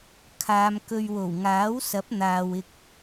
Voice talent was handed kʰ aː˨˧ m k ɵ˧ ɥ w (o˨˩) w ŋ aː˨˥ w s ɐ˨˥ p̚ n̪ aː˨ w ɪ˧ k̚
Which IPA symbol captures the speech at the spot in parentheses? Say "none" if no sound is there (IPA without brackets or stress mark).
o˨˩